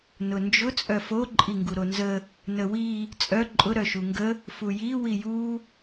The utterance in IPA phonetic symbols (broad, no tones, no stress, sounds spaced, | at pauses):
n ʊ n d͡ʒ ʊ t͡sʼ œ f o ǃʼ i ŋ ɡ u ɾ o n z ə | n ə w i | t͡sʼ œ ǃʼ ʊ ɾ œ ʃ u ŋ ɡ ə | f u j i w i j u